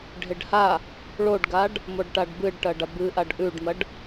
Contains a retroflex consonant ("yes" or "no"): yes